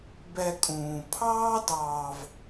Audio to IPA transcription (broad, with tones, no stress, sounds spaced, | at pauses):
b ɛ˨ kʼ ũː˩ pʰ ɑː˦ d ɑː˨ v